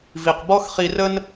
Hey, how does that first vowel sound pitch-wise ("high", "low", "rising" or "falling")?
low